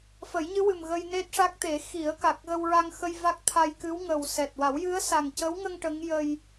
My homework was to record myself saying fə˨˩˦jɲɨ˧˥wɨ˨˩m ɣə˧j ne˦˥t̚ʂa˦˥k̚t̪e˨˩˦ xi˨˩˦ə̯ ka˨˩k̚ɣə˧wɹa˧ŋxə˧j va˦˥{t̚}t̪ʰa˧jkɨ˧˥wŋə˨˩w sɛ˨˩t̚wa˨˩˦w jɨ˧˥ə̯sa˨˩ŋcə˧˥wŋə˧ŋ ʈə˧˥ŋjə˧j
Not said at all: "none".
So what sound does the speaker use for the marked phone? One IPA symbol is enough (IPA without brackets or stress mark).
k̚